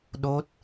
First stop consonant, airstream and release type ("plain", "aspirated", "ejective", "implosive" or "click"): implosive